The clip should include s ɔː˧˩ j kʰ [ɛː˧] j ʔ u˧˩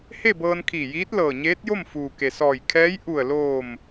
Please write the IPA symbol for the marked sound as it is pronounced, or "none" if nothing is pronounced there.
ɛː˧˥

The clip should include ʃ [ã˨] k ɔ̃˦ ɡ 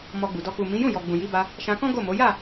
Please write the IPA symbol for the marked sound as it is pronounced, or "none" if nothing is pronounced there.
ã˧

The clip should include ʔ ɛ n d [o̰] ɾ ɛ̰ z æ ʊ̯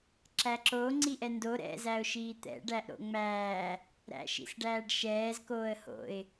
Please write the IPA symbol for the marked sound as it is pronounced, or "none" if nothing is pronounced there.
o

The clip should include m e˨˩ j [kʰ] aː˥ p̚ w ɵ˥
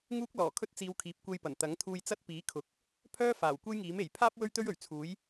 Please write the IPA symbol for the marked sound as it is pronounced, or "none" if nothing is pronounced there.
pʰ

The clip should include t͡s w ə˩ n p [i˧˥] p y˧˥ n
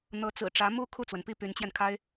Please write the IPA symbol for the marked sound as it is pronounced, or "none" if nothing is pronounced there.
i˥˩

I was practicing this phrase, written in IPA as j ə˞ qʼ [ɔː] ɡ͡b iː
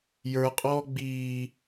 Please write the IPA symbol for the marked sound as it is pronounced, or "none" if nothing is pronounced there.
ɔː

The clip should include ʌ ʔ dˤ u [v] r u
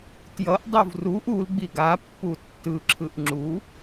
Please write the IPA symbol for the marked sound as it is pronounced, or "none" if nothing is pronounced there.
v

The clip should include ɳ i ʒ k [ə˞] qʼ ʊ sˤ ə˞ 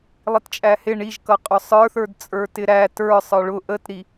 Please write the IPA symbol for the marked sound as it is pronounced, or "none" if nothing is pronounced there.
ʌ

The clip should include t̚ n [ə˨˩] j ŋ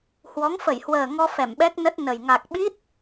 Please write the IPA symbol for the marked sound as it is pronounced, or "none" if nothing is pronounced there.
ə˨˩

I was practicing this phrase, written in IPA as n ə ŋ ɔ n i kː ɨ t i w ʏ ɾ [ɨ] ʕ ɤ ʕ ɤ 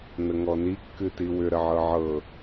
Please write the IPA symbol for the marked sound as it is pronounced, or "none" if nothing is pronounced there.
ə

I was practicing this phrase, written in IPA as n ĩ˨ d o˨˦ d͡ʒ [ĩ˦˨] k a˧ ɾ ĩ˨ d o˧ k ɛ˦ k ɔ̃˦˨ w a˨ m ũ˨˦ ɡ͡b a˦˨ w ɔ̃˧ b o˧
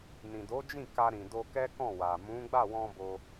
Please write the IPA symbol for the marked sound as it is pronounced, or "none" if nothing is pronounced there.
ĩ˦˨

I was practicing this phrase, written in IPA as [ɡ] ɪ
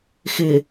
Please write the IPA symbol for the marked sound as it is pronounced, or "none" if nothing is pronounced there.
x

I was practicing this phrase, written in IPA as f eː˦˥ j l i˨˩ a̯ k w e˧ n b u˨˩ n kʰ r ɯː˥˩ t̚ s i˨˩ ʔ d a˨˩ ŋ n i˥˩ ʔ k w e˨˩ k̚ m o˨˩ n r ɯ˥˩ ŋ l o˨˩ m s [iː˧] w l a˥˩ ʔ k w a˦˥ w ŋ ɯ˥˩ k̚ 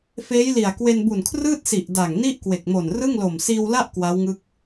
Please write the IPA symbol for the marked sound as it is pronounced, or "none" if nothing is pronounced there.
iː˧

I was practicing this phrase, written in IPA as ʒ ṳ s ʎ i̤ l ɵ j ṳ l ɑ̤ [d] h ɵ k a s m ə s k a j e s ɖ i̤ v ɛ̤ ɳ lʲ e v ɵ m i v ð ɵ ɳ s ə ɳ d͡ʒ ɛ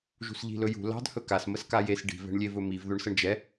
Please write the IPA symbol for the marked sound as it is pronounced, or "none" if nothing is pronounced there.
d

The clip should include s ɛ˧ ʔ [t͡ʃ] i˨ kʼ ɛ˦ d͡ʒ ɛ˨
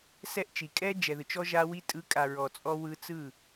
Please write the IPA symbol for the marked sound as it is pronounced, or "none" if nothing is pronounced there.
t͡ʃ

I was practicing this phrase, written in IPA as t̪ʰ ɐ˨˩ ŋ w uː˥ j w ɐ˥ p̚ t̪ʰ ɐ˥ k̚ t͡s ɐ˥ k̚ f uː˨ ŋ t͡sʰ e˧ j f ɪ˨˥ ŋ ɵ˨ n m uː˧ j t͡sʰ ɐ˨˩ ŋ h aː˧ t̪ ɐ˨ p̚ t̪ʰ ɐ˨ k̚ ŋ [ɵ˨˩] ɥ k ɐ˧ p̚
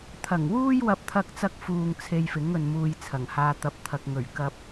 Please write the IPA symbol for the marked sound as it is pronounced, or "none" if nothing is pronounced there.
ɵ˨˩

